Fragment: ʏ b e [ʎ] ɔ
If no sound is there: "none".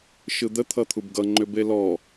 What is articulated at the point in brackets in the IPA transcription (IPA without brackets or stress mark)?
l